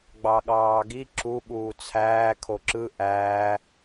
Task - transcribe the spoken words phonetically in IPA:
ɡ͡b ɑ ɠ ɑː ɡ i ǁ u ɓ uː t͡sʰ æː kʰ o ǁ ɯ ʔ æː

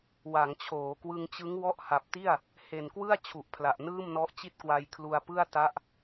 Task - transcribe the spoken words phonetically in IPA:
w a˩˦ ŋ t͡ɕʰ oː˩˦ k w ɯ˧ ŋ t͡ɕ ɯ˦˥ ŋ w ɔ˦˥ ʔ h a˨˩ p̚ t i˥˩ a̯ | h e˨˩ n k w ɯ˥˩ a̯ t͡ɕʰ u˨˩ ʔ pʰ l a˨˩ ʔ n ɯː˥˩ m n ɔ˦˥ ʔ t͡ɕ i˥˩ t̚ k w a˧ j kʰ l u˧ a̯ p ɯ˥˩ a̯ t a˦˥ ʔ

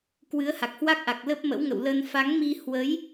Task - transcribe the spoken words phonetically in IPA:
k w ɨ˨˦ ə̯ h a˨˩ k̚ h w a˦˥ k̚ ʔ a˨˩ k̚ l ə˦˥ p̚ m ə̰˧˥ w ŋ ə̰˧˨ w l ə˧ n f a˨˦ ŋ m i˧ h w ə˨˦ j

